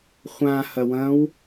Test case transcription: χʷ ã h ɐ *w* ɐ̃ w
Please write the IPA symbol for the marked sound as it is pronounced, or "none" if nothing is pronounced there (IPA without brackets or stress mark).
w